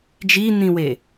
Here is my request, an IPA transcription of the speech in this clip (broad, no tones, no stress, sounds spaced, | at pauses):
d͡ʒ i n̪ ĩ w e